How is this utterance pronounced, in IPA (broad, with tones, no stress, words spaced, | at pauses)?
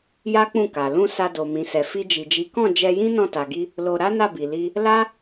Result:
ja˦ k͡pũ˦˨ka˨ lũ˧ sa˧do˨ mĩ˨ sɛ˨fi˧d͡ʒi˨d͡ʒi˨˦ kɔ̃˦˨ d͡ʒɛ˧jĩ˦ nɔ̃˦˨ta˨ɡi˧ | lo˧ ɾa˦na˦˨ bi˨li˧ | la˦